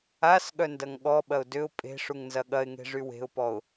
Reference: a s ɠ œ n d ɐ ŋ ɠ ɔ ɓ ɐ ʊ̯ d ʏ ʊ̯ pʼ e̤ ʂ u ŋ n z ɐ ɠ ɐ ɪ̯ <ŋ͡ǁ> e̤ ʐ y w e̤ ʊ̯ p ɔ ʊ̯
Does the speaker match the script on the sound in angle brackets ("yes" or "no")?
no